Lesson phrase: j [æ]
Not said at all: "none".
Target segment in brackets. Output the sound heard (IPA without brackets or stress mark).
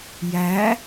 æ